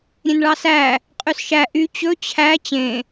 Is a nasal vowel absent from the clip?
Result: no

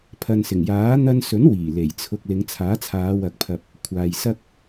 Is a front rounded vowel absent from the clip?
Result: yes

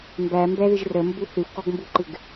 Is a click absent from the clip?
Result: no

